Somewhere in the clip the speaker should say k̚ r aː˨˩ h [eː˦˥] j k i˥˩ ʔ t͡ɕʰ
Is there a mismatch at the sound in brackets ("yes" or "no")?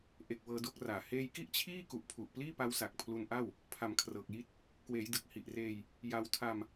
yes